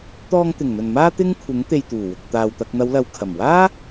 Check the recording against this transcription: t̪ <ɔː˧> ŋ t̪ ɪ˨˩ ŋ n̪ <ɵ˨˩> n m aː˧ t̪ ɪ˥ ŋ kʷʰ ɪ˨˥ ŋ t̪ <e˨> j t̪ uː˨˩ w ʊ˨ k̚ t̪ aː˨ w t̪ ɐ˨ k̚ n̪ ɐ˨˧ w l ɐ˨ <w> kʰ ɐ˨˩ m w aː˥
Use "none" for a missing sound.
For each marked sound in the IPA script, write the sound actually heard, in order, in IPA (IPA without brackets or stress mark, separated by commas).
ɔː˧, ɵ˨˩, e˨, w